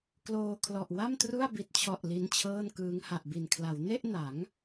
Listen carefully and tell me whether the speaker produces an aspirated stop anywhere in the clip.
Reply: yes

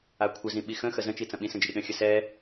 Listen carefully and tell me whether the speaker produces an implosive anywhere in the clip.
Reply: yes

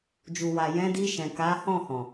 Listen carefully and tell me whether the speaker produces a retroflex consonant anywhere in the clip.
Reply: no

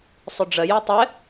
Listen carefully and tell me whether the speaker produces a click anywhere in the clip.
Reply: no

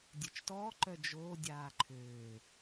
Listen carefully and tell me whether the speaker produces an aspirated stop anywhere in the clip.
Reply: yes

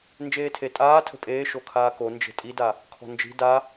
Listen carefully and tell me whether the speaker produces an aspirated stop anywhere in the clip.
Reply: yes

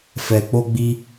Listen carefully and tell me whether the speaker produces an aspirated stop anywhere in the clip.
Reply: no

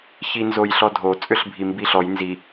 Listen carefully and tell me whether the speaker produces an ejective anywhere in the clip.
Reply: yes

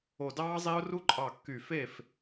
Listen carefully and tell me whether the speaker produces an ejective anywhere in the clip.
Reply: yes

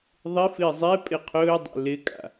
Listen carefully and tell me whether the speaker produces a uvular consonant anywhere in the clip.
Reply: yes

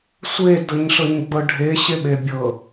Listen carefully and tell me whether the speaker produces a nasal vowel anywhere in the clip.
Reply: no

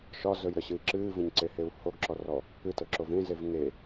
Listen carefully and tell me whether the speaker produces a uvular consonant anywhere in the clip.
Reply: no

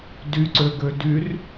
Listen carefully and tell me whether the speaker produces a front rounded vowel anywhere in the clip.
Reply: yes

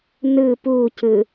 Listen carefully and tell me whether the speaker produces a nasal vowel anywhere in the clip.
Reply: no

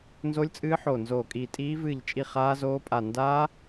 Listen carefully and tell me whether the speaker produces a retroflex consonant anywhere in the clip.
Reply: no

